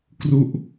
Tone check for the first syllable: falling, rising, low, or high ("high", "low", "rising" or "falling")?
falling